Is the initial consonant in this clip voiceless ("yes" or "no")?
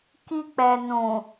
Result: yes